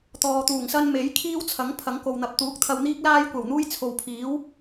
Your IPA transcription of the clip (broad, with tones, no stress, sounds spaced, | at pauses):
t̪ ɔː˨ t̪ uː˨˩ ŋ s ɐ˥ n m e˨˥ j kʰ iː˥ w t͡sʰ ɐ˨˥ ŋ pʰ ɐ˨˥ ŋ k o˨ w n̪ ɐ˨˥ p̚ t̪ uː˨˥ k̚ t̪ʰ ɐ˧ w n̪ iː˥ k̚ l aː˥ j kʷ ɐ˨˩ w n̪ uː˥ j t͡sʰ o˨ w pʰ iː˨˥ w